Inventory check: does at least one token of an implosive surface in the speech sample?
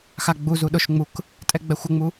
yes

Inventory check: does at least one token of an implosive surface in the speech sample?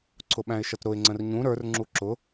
yes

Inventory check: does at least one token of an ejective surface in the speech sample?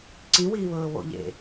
no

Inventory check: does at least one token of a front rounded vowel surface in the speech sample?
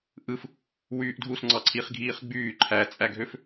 yes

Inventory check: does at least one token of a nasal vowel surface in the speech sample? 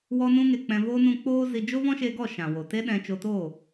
yes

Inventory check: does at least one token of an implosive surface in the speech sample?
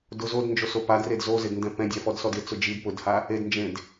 no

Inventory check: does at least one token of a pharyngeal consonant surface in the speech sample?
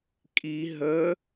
no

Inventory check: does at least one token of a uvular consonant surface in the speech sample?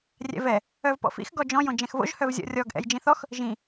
no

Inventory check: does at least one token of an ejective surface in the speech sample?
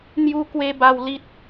no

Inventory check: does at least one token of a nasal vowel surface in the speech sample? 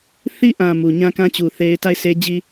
yes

